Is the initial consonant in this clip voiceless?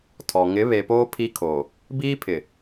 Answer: yes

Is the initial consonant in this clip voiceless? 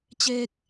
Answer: yes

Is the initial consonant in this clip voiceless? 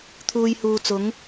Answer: yes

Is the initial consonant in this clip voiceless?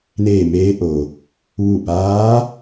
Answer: no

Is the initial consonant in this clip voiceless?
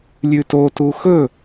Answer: no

